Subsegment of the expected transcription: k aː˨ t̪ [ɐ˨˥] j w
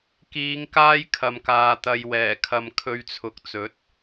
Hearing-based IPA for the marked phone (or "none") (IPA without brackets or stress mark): ɐ˨